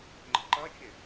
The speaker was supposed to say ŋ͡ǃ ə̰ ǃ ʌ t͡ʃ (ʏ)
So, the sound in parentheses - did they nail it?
no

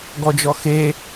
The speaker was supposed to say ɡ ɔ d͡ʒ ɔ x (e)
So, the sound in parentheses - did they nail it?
yes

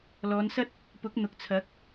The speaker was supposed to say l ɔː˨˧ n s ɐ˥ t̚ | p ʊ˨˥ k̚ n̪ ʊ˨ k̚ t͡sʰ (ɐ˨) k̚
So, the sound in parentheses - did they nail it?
no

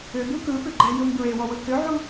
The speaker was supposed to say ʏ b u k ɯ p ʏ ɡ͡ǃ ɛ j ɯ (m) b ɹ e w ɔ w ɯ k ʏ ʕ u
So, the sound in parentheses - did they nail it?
yes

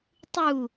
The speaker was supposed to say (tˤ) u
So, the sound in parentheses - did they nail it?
yes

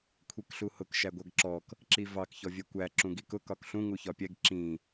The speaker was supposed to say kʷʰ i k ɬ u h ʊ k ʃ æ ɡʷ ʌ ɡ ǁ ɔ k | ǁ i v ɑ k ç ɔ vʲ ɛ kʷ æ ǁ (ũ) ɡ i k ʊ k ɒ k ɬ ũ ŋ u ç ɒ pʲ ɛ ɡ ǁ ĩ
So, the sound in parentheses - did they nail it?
yes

